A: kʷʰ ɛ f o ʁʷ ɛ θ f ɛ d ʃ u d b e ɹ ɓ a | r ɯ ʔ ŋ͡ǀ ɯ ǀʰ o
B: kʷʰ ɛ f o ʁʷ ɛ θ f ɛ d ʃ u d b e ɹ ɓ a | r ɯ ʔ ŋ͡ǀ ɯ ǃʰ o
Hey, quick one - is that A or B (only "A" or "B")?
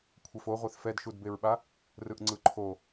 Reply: B